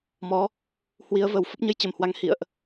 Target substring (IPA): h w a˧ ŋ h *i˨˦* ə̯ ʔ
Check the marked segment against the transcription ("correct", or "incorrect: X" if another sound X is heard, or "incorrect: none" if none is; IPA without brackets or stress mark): incorrect: ḭ˧˨